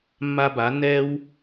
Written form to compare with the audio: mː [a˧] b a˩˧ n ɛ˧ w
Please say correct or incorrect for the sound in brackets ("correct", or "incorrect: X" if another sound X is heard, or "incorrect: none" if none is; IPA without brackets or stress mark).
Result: correct